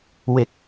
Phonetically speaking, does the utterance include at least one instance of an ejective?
no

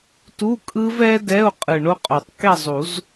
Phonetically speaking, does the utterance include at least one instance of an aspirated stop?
no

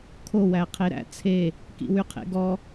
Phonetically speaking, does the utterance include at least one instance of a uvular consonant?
yes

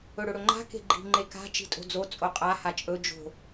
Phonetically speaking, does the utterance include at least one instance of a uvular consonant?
yes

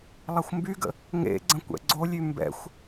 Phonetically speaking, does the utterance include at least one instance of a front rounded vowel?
yes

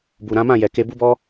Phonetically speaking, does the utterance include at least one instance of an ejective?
no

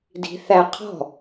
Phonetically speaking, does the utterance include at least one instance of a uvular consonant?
yes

